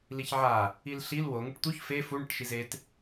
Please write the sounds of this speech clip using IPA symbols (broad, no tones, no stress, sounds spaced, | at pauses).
l i ç ʕ a | i l ɬ i l w o ŋ i ʈ t̪ u ç f e f u ɳ i ʈ ʃ i z e t